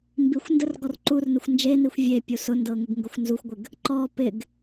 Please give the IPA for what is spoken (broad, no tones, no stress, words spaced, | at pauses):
mbixʷ ndərɡɔrǃurnɪxʷ nd͡ʒenixʷ vʲe pʲusʊndɤ ŋɪɡŋɡʊxʷnzuxʷɡʷɪɡ | ǃɔ pɪɡ